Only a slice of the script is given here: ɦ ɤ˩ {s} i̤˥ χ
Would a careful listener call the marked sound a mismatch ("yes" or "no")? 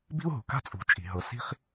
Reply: no